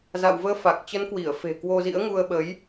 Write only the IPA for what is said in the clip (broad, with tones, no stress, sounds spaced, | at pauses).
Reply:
z a̰˧˨ w v əː˨˦ f a˨˩ k̚ t͡ɕ ə˨˦ n k w i˧˩ ə̯ f e̤˨˩ k w o˧ z ḭ˧˥ ə̯ ŋ u˧ ə̯ ɓ ə˨˦ j